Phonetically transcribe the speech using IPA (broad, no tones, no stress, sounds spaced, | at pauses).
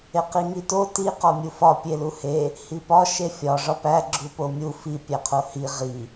e q i ŋ i t o t i q ɒ mʲ u f ɒ pʲ e l u h e | h i p ɒ ʃ e fʲ ɒ ʐ ɒ p æ ɡ͡ǁ u p o mʲ u f i pʲ æ qʰ o h i ʁ i